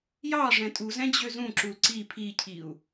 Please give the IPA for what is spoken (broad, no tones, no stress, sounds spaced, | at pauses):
j ɑ ʐ ɛ̃ tʼ u z ɛ̃ d͡ʑ ø z ũ ǁ u l ǀ i pʰ i cʰ i u̯